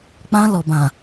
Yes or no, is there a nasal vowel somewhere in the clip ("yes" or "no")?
yes